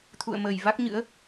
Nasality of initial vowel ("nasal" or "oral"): oral